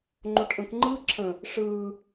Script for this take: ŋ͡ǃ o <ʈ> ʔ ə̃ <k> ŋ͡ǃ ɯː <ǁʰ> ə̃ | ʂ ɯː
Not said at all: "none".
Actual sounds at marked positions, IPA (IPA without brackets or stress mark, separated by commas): ʈ, k, ǁʰ